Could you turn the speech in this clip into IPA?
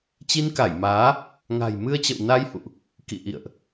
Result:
t͡ɕ i˧ n k a˧˩ j m aː˨˦ | ŋ a̤˨˩ j m ɨ˧ ə̯ t͡ɕ ə̰˧˨ w n a˧ j h ṵ˧˨ ʔ | k ḭ˧˨ ʔ ḭ˧˨ ə̯ ʔ

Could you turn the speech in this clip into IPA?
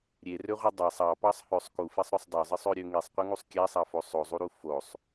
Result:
ɾʲ e r ø ʁʷ ɯ dˤ ɑ sˤ ɑ p ɑ sˤ h ø sˤ k u f i sˤ ɾ ø sˤ dˤ ø zˤ ɯ sˤ ø ɾʲ ø ŋ i sˤ qʷ ɯ ŋ u sˤ kʲ æ sˤ ɑ f o sˤ o zˤ u ɾ u f o sˤ

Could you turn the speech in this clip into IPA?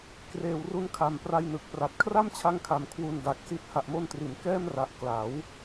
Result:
k r eː˨˩ w r u˧ n kʰ a˨˩ m p r a˧ j n ɯ˨˩ k̚ p r a˨˩ t̚ kʰ r a˥˩ m t͡ɕʰ a˦˥ ŋ kʰ a˨˩ m kʰ w u˧ n d a˨˩ k̚ s i˦˥ t̚ h a˨˩ ʔ m o˧ n t r i˩˦ n k ɛː˥˩ m r a˨˩ ʔ k l a˩˦ w

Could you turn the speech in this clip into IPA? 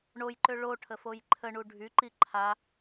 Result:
ɳ o j ǃ ø ɭ o ʈʰ ə f o j ǃʰ ə ɳ u ɖʱ y ǃ i ǃʰ a

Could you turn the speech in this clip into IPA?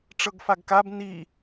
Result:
ʈ͡ʂ ɤ ɡ f a ɡ k a b n i

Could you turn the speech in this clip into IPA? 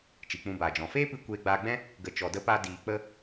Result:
t͡ʃ i˨ k͡p ũ˧ b aː˨ d͡ʒ ɔ̃˨ f eː˦ p ɨ˧ kʷ eː˧ ɡ͡b aː˧ ɡ͡b ɛ̃˦ | ɡ ə˨ t͡ʃ ɔ˨ d ə˧ p a˧ d iː˨ k͡p ə˧

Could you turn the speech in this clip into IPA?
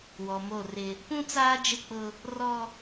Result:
w ɔ˨ m o˦˨ r ɪ˦ | p ũ˦ t͡s aː˦ d͡ʒ ɪ˦˨ k͡p ʊ˦ | r ɔ˦

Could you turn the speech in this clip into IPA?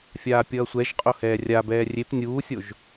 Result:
fʲ aː pʲ ʌː sʷ ɛ ʒ qʼ o h ɛː rʲ a b ɛː rʲ e p nʲ uː sʲ o ʒ

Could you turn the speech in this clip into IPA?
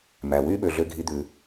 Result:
m æ˩ w y˦ ɓ ø˩ ɮ ø˨ ɡʱ i˨ d̪ ʉ˩

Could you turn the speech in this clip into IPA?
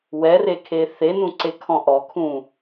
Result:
w ɛ r e kʰ e θ e n ũ ǀ e kʰ ɔ̃ ʔ ɔ kʰ ũ

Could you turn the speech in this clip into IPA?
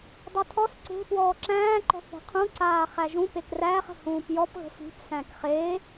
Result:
dˤ ɐ tʰ ɔ s ǀ e̤ p w ɔː ǁ æ̃ː ǃ ɔ̤ θ e̤ qʰ ũ ǀ aː χ æ ʒ ũ p e k r æː χ ə̤ h ũː p j ɔ p ɣ ə̤ f i̤ p s æ̃ k χ e

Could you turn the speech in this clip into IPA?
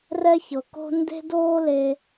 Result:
r ɛ˥ ç ɤ˩ k o̤˥ n d e̤˦ d oː˦ l e˨

